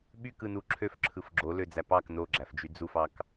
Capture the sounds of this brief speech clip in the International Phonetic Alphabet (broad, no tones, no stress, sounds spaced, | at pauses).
ɓ y k ɯ n u ǁʰ ø f ǁʰ ɯ f ɡ͡ǁ o l ø d͡z æ p ɑ k n o ɡ͡ǁ æ f d͡ʒ y d͡z u f ɑ k